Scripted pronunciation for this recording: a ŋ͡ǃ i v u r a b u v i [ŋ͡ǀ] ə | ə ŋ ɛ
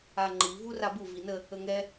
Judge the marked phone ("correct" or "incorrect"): incorrect